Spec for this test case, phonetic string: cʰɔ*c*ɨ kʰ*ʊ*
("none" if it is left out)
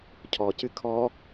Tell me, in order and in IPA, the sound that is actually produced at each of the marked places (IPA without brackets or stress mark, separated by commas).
c, ɔ